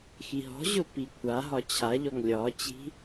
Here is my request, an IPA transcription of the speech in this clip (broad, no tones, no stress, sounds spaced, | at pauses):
x i ɦ ɔ̤ ʑ ʊ p i kʷʰ a ɦ ɒ t͡ɕʰ a ʎ ɔ ŋ lʲ ɒ t͡ɕ i̤